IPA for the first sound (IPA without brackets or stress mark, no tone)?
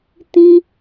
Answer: t